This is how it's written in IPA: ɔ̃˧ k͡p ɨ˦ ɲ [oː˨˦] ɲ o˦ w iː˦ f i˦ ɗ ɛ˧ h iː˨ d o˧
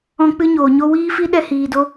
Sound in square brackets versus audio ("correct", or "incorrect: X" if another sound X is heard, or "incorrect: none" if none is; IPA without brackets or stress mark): incorrect: oː˨